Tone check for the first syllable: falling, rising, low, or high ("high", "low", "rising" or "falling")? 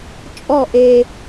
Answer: falling